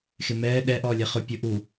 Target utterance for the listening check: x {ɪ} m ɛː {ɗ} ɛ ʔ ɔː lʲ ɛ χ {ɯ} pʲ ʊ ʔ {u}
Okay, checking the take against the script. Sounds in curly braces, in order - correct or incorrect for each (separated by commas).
correct, correct, incorrect, correct